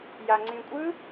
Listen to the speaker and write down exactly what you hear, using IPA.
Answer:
j a ŋ͡ǀ ĩ kʷʼ ɯ

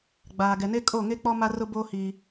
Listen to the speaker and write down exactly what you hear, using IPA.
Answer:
ɡ͡b aː˨ ɡ ɛ˨ n e˦ kʼ oː˦˨ ŋ e˦ k͡p ɔ˦ m a˦ r ʊ˦ b oː˦ h i˦

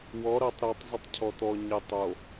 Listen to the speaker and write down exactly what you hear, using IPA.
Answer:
w ɔ ɾ ʌ tˤ ɾ a tˤ zˤ ɪ tˤ cʰ ɔ t̪ ɔ ɲ ɪ tˤ o

